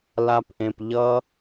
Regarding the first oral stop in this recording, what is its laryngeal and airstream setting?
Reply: plain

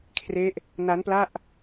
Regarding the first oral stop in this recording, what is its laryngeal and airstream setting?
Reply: aspirated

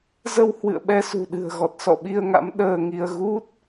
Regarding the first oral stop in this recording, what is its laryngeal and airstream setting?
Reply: implosive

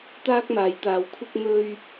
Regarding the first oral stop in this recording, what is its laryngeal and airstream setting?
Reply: plain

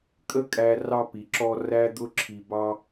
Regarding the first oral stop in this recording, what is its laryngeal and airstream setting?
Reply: ejective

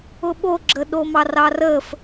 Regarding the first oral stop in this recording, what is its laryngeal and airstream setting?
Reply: implosive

